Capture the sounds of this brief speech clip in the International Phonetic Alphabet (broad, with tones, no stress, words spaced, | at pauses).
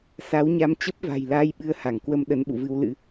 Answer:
sa˨˦wɲa˧m t͡ɕə˦˥p̚va̤˨˩jlaː˧jɓɨ˨˦ə̯ ha˧˩ŋkwə˧mɗə˨˦nɓṵ˧˨ vɨ˧wlɨ̰˧˥